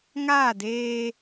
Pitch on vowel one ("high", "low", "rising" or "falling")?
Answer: falling